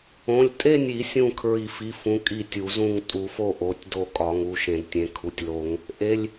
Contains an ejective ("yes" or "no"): yes